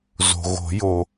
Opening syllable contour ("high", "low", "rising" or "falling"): low